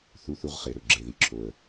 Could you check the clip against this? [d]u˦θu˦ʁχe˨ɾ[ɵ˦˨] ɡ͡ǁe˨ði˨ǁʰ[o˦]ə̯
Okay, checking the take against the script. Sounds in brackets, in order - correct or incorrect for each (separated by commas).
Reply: incorrect, correct, incorrect